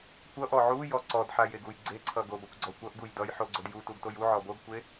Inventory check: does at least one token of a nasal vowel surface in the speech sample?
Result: no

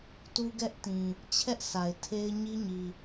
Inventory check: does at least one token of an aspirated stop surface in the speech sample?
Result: yes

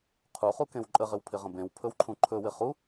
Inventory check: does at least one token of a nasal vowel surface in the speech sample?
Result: yes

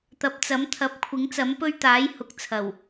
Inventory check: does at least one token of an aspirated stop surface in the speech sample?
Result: yes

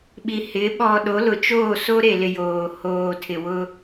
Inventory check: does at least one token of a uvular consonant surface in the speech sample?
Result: no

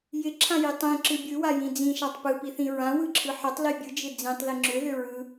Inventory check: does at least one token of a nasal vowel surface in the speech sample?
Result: yes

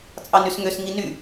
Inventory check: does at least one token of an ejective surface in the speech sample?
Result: yes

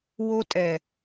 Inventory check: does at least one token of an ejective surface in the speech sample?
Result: yes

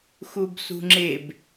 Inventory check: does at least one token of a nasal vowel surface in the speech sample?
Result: no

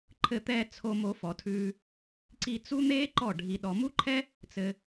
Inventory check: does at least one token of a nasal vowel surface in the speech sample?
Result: no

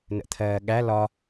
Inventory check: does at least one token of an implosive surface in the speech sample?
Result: yes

